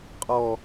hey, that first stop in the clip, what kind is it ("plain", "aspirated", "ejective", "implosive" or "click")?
ejective